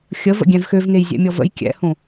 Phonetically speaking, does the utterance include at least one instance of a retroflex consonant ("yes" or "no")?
no